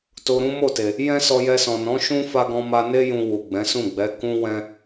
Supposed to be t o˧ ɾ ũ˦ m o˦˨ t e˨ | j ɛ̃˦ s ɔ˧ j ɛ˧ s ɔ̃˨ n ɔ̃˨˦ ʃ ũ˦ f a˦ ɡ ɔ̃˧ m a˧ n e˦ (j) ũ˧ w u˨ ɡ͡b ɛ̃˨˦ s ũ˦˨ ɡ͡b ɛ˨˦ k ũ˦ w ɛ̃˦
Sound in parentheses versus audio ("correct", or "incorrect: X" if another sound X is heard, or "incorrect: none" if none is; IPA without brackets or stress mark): correct